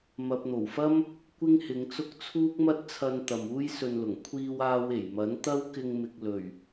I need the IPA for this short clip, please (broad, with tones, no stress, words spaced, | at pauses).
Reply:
mɐ˨p̚n̪o˨˩wfɐ˥m | kʷɪ˥ŋhɪ˨˧ŋt͡sʊ˥k̚ t͡sʰuː˥k̚mɐ˥t̚t͡sʰɐ˧n t̪ɐ˨muː˥jsɵ˧nlʊ˨˩ŋ kʷʰiː˧w aː˧we˨˩j mɐ˨˥n t̪ɐ˥w kɪ˧ŋmɪ˨k̚ lɵ˨˩ɥ